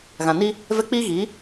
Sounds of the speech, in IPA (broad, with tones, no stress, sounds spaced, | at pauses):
ɣ ã˨ n i˦ | v ɛ˦ k͡p iː˦ ɣ i˨˦